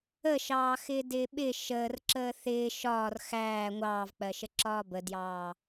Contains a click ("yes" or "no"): yes